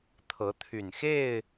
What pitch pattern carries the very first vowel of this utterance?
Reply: rising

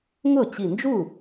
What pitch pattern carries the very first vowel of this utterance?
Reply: falling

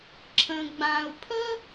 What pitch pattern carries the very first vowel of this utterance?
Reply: low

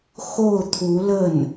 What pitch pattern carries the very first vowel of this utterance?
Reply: falling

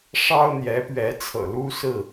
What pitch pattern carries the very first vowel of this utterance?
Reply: high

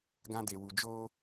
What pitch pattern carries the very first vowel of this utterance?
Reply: high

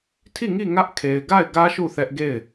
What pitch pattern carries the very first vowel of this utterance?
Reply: falling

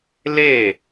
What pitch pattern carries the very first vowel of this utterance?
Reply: falling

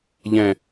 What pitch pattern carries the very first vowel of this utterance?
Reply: low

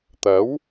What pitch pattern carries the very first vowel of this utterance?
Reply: rising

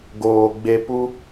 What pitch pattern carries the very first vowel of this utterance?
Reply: low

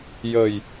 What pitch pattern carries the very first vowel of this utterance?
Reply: low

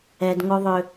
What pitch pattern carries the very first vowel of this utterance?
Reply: high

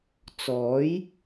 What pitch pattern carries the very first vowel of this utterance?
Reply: rising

